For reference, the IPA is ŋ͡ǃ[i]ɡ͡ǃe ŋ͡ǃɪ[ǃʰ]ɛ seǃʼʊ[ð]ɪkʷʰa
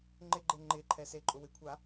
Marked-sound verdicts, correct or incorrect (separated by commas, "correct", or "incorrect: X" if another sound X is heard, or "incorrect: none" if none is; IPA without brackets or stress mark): incorrect: ɪ, correct, incorrect: w